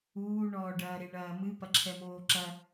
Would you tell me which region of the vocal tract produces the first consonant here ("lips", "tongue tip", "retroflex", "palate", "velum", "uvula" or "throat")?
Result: retroflex